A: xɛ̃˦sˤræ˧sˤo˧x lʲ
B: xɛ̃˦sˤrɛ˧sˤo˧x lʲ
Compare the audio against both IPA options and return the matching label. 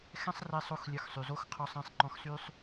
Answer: B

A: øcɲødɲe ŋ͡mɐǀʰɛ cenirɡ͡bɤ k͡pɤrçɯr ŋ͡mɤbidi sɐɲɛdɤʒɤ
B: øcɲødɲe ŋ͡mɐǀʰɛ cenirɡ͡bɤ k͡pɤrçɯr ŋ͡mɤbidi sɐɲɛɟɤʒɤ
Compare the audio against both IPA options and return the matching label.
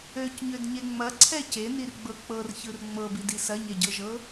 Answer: B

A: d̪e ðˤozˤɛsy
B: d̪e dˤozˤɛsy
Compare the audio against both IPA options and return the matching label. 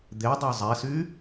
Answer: B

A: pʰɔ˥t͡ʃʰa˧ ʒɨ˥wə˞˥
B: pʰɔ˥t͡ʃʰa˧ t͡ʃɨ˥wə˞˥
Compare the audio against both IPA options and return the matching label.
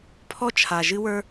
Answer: A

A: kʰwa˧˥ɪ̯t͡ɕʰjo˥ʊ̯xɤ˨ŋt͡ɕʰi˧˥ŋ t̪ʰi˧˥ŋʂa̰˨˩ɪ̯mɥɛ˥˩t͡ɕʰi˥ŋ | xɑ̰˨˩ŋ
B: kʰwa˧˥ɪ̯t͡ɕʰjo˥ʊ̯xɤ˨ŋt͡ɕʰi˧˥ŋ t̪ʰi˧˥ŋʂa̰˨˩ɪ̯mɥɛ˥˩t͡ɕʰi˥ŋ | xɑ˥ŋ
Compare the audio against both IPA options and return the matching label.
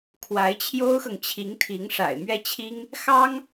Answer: B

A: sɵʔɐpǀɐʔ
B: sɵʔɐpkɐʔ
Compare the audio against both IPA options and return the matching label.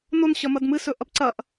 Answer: A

